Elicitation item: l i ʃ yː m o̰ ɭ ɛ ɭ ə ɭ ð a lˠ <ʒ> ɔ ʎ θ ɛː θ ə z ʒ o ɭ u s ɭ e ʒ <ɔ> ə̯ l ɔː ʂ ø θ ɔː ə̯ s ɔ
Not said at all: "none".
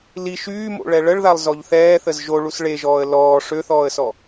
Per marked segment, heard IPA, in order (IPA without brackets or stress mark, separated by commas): z, ɔː